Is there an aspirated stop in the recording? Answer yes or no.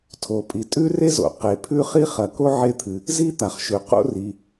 yes